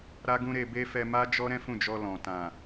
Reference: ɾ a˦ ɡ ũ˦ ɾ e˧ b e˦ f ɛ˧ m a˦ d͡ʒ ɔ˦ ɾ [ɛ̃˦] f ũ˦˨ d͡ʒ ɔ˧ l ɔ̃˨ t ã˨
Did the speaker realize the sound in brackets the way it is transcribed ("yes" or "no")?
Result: yes